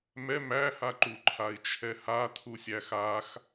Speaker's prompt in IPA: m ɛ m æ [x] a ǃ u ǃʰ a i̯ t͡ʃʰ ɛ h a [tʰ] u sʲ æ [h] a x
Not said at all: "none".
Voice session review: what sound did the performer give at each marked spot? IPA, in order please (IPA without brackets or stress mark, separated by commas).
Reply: h, tʰ, x